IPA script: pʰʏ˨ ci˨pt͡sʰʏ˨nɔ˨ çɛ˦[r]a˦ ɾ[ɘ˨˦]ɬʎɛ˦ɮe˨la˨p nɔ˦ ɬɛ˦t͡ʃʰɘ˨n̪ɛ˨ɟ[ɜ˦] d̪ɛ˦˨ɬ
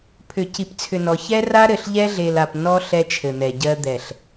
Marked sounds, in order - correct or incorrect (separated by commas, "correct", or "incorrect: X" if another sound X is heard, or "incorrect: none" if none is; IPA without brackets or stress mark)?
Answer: correct, incorrect: ɘ˨, correct